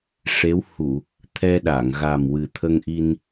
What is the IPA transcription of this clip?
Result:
ʂ e˧˥ w h u˨˩˨ | t̪ʰ ɛ˧ ɗ a˨˩˨ ŋ ɣ a˨˩ m w ɨ˨˩ t̪ʰ ə˧ ŋ ʔ i˧ n

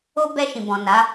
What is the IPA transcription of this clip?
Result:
o˦ b ɛ˧ ʃ ĩ˨ b ɔ̃˨ n a˨˦

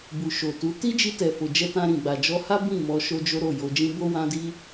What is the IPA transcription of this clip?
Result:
b u˨ ʃ o˨ t u˨˦ t i˦ d͡ʒ i˧ t ɛ˨ f o˨ d͡ʒ ɛ˧ t ã˧ ɾ ĩ˨ ɡ͡b a˨ d͡ʒ ɔ˧ h a˦ b ĩ˦˨ m ɔ˧ ʃ o˦ d͡ʒ o˦ ɾ o˦˨ j o˧ d͡ʒ ĩ˦ b o˦ w ã˦ d i˦

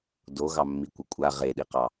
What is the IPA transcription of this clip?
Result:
d o ɣ ɑ mː i kʷ ə kʷʼ a ʁ e ɗ i q ɑ

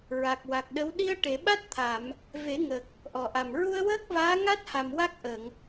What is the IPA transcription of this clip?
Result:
ɹ a˨˩ k̚ w a˨˩ k̚ ɗ ə˧˥ w ɗ i˧ ə̯ ʈ e˨˩˨ ɓ a˦˥ t̚ t̪ʰ a˨˩˨ m | v e˨˩˦ ŋ ə˨˩ k̚ | ʔ ɔ˨˩ ʔ a˨˩ m ɹ u˧ ə̯ w əː˦˥ k̚ v aː˧˥ ŋ a˦˥ t̚ h a˨˩ m w a˦˥ k̚ ʔ ə˨˩˨ ŋ

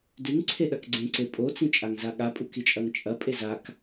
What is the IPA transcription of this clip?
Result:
d ʉ ŋ ǀʰ e ɗ ɐ k ɡ͡ǀ ẽ ǀ e pʼ o t͡s ĩ t͡ʃʼ a ŋ z a ɠ a pʼ u k i t͡ʃʼ ɐ ŋ t͡ʃʼ ɐ pʼ e z a k

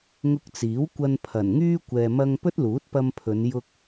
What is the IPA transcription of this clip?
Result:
ŋ ʊ˧ k̚ t͡s iː˨˥ w kʷ ɐ˧ n pʰ ɐ˨˩ n ŋ yː˥ kʷ ɛː˨ m ɐ˧ ŋ p ɵ˥ t̚ l uː˨˥ t̚ p ɐ˧ m pʰ ɵ˨˧ n j ʊ˧ k̚

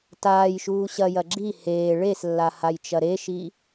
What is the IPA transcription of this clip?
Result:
t aː j ʃ uː ɕ ɐ j ɐ ɡ͡ǁ i h eː ɭ e s lː a h a j t͡ʃ ɐ ɾ e ʃ i

